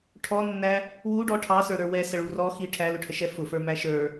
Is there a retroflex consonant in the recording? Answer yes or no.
yes